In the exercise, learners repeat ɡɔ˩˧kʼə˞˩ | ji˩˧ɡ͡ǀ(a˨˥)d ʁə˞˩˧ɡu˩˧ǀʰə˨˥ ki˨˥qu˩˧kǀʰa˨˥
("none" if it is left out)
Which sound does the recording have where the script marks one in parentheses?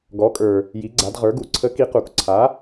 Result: a˩˧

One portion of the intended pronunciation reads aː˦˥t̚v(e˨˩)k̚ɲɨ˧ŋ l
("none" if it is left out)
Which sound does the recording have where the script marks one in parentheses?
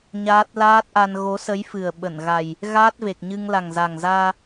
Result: e˨˩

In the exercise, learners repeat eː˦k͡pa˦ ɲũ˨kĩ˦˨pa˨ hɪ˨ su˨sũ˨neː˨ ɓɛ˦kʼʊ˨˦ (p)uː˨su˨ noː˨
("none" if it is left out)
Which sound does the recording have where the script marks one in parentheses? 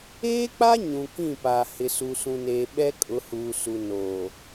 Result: h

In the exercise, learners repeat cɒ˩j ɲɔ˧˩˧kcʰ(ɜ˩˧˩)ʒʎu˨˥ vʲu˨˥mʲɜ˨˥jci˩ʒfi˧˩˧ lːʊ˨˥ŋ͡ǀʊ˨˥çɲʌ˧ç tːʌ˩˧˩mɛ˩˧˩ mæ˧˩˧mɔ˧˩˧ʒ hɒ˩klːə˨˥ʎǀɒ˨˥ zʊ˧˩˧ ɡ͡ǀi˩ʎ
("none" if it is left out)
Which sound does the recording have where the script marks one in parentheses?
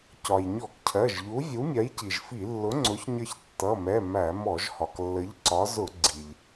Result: ɜ˩˧˩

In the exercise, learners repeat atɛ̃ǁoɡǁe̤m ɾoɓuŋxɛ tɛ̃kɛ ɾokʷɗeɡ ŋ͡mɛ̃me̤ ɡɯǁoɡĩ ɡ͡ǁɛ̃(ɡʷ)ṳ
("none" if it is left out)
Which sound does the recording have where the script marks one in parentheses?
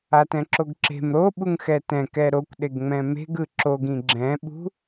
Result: ɓ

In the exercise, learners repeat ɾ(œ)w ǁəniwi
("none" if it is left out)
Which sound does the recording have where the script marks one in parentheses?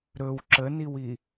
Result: ɵ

